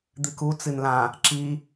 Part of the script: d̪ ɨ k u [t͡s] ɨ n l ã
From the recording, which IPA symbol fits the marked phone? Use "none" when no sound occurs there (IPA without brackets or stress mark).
t͡s